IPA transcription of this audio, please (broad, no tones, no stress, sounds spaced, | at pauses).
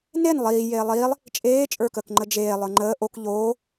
n e n lˠ iː j eː lˠ iː lˠ | t͡ʃʼ eː t͡ʃʼ ə˞ k əː k ŋ͡ǃ ə d͡ʒ eː lˠ ə˞ ŋ͡ǃ əː ʔ o k ʎ oː